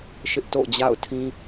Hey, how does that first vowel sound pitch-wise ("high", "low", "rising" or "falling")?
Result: high